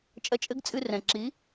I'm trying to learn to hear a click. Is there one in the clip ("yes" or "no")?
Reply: yes